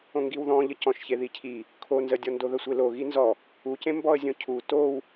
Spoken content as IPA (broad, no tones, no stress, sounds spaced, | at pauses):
õ ŋ ɡ i w ð ɔ̃ ʎ ə c ɔ̃ ʃ ç e ð i cʰ i | kʰ o n z ə dʲ ɔ n d o ð ə sʷ e l o ɣ i n z ɔ | u c ẽ m b ɔ ə̯ zʲ õ cʰ u t o w